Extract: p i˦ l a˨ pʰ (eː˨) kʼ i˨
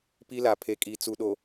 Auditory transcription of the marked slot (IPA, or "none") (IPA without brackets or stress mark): e˨